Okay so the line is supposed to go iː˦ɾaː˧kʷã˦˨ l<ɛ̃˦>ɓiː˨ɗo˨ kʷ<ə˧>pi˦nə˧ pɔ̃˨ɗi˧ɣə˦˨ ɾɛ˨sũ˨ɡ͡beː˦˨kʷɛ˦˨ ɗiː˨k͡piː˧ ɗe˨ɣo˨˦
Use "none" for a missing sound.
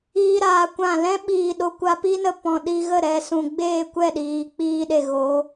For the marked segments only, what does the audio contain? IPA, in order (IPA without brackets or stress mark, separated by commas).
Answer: ɛ̃˦, a˧